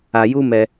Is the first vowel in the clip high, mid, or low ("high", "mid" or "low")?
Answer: low